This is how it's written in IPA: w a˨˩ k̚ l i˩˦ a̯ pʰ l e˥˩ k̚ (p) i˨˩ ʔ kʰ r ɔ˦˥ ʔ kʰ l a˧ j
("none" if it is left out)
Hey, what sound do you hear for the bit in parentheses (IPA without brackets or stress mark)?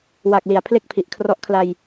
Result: pʰ